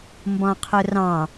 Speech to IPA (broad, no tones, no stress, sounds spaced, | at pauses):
m b ɔ̃ qʰ ʊ r ɑ̃